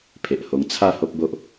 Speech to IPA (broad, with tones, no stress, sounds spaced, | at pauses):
pʰ e˨ ʔ h o˧ ŋ t͡sʰ a˥˧ h o˦ p̚ b o˦ ʔ